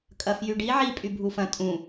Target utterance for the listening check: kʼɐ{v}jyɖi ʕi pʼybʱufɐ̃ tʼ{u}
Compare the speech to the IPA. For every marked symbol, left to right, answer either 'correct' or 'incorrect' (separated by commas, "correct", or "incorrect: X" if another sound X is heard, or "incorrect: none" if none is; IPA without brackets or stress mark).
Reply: incorrect: f, incorrect: ũ